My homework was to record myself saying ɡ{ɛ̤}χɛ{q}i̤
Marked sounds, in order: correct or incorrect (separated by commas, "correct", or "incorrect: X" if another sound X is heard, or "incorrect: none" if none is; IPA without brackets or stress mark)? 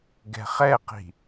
correct, correct